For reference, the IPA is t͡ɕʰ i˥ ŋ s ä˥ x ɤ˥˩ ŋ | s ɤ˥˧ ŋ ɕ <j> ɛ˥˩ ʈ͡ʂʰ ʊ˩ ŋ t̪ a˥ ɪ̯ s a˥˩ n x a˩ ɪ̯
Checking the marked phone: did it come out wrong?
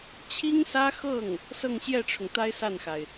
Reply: no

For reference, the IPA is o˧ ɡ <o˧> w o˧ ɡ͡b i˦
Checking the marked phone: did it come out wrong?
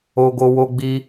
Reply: no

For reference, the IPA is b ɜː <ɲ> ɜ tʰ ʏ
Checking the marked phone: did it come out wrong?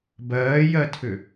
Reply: yes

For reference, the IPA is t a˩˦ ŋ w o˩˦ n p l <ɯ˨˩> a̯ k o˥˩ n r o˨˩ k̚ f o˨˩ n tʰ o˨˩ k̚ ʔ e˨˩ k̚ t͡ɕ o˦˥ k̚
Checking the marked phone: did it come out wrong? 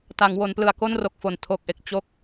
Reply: no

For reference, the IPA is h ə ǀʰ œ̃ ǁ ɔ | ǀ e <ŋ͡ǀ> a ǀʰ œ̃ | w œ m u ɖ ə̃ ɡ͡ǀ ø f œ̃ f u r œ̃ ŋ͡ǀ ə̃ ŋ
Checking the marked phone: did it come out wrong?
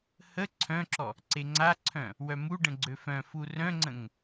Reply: no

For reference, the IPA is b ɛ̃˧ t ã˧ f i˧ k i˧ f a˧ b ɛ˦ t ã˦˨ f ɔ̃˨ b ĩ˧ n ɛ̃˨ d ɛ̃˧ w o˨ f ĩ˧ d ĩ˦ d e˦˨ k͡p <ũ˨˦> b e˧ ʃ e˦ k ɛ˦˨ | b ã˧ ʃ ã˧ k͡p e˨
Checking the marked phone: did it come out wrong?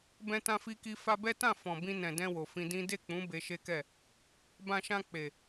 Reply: no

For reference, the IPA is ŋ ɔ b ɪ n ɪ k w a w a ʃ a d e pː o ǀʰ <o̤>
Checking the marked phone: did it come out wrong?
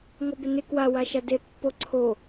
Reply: yes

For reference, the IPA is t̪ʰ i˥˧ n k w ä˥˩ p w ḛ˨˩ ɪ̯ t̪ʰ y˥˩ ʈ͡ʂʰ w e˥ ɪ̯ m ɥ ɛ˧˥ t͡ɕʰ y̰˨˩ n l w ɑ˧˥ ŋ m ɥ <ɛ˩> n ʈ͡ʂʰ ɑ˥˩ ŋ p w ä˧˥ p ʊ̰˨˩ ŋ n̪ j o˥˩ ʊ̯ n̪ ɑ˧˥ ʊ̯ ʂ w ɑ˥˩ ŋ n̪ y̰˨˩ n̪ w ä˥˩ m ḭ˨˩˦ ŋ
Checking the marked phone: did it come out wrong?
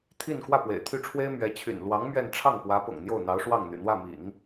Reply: yes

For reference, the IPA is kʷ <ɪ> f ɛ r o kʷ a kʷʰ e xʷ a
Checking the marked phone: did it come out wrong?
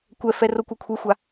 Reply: yes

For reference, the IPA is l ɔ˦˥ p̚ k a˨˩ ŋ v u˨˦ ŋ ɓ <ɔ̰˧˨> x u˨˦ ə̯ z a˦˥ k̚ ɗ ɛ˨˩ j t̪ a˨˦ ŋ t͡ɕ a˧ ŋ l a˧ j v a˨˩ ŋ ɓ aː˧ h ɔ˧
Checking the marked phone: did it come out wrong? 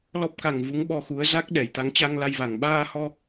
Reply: yes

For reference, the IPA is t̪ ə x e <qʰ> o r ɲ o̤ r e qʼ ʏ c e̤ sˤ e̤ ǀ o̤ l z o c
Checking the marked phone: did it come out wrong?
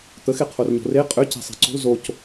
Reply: no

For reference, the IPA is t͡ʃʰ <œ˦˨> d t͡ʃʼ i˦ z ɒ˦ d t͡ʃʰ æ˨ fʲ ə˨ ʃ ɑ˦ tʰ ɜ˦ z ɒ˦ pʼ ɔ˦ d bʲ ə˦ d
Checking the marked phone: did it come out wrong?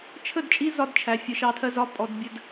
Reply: yes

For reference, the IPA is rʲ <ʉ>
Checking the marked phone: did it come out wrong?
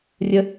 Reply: yes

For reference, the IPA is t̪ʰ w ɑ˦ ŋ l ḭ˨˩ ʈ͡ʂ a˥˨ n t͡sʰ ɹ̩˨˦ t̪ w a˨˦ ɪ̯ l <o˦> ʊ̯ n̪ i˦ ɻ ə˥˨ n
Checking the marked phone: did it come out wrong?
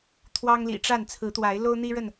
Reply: no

